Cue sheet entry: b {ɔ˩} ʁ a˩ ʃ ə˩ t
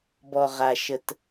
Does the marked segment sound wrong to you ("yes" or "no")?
no